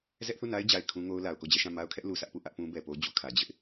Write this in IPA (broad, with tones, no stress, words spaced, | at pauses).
zɛ˦ʔθu˦˨na˦ɪ̯ d͡ʑa˨ɪ̯ kʰũ˦ŋo˦ʊ̯la˨ʊ̯ ko˦˨d͡ʑɛ˦˨ʃã˦˨ ma˦ʊ̯kʰɛ˦ʔ lu˨sä˦ʔpu˦˨ ʔä˦ʔ pũ˦bɛ˨po˦ d͡ʑu˨kʰä˨ d͡ʑɪ˦ʔ